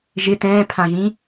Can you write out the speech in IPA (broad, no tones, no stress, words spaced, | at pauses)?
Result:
ʒɪ tɛ̃ːpʰãʒĩ